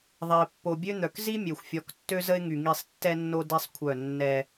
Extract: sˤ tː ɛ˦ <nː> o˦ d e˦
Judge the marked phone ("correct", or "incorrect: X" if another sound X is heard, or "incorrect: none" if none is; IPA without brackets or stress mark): correct